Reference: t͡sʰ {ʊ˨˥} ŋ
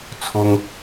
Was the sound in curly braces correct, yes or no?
no